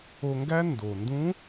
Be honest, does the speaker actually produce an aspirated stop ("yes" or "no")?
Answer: no